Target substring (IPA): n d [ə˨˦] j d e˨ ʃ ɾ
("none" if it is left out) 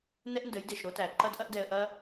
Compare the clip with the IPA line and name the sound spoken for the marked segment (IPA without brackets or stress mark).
ə˨˦